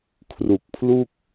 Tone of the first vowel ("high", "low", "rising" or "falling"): low